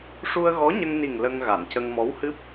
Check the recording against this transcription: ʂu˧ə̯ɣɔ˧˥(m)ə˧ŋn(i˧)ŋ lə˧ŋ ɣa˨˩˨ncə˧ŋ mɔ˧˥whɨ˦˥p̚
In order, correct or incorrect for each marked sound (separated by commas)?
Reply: incorrect, incorrect